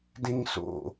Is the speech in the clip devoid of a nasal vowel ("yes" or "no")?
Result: no